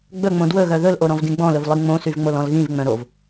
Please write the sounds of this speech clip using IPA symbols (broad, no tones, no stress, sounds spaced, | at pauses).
ɡ͡b ɵ ŋ͡m õ d w ɵ ɣ œ ð ɵ l ʔ o ɾ ɔ̃ v d ĩ ɡ͡b ɔ̃ l ɵ v lˠ i ŋ͡m õ s y v ŋ͡m o l ɔ̃ l ɣ ĩ v ŋ͡m œ̃ ɾ o v